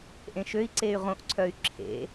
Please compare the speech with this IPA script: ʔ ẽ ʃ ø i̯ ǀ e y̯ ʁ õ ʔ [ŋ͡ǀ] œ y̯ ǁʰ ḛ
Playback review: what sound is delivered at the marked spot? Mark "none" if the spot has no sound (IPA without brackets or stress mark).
ǀʰ